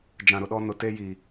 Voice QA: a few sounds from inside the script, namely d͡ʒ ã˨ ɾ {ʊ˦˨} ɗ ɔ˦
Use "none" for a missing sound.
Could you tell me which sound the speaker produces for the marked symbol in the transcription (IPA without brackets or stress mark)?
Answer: ʊ˨